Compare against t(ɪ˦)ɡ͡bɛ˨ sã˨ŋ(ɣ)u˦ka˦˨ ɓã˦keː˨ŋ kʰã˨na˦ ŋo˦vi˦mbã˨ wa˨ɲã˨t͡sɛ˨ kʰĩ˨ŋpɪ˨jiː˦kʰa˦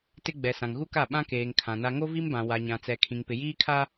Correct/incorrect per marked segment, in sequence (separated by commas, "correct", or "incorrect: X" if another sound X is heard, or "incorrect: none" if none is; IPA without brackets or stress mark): correct, correct